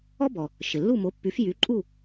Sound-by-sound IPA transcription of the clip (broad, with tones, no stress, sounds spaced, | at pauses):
ɔ˥ b ɔ˩ | ʃ ɪ˩ lː u˥˩ m o˩˥ pː y˩˥ f j y˩˥ ǃʼ u˥˩